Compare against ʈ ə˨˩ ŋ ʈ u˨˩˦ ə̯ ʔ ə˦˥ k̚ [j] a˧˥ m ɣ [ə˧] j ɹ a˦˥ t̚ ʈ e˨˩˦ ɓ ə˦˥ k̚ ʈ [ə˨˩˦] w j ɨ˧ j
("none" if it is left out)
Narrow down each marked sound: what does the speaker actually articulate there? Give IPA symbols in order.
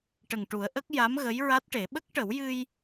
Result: j, ə˧˥, ə˨˩˦

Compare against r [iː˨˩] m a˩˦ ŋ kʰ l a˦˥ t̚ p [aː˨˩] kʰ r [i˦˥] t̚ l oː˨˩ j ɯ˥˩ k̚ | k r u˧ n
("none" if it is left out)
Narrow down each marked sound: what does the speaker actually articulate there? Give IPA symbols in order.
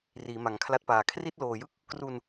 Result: iː˩˦, aː˨˩, i˥˩

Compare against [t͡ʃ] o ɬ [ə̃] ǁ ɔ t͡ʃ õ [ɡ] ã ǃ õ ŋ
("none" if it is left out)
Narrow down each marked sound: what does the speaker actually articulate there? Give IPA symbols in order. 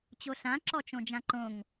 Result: t͡ɕ, ã, d͡ʒ

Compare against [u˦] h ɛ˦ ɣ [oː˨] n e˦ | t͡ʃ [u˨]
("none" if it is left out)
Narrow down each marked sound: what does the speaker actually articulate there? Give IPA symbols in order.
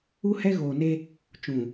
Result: u˦, oː˨, ũ˨

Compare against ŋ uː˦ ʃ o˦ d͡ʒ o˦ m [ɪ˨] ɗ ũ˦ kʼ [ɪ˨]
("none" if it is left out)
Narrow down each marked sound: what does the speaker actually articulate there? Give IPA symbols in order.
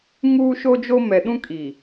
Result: ɛ˨, i˨

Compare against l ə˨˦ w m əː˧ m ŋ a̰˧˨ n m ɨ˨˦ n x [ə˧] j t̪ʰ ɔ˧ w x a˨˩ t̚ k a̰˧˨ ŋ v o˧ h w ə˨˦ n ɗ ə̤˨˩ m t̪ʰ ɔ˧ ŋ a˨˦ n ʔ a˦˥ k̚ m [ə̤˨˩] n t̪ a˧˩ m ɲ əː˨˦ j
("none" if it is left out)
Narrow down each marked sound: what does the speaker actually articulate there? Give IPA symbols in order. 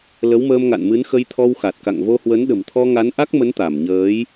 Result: ə˧, ə˨˦

